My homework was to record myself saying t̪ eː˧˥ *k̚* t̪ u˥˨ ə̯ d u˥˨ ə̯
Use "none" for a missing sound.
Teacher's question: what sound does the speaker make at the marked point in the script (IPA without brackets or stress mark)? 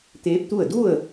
p̚